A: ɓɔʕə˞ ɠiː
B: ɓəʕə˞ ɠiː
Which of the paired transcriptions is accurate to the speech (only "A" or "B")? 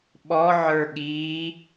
A